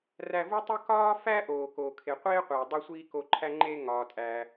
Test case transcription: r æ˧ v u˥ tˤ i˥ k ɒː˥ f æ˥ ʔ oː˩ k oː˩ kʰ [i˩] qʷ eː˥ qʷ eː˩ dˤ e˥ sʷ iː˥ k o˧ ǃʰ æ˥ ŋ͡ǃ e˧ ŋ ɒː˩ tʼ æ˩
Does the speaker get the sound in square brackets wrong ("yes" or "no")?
yes